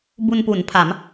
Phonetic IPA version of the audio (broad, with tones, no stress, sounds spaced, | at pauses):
b u˧ n p u˩˦ n pʰ a˩˦ m